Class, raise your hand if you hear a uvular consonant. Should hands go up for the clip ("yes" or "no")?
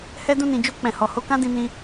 no